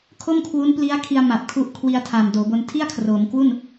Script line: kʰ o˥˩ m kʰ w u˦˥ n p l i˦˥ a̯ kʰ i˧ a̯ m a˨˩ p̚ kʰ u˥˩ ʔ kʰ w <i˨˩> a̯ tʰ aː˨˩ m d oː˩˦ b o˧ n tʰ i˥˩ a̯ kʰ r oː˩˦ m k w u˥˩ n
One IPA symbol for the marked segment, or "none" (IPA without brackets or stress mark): i˧